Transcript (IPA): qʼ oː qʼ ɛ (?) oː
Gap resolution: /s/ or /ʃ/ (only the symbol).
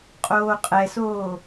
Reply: s